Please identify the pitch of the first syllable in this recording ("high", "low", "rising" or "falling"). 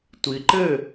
low